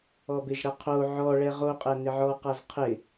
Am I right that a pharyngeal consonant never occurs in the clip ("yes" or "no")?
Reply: no